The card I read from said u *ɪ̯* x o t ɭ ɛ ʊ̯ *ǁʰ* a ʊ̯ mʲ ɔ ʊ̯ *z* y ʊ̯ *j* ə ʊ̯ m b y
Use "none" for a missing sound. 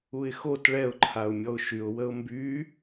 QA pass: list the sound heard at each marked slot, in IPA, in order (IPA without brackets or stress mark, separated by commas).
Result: ɪ̯, ǃʰ, ʃ, w